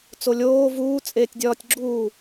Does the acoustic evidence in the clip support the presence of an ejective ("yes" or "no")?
yes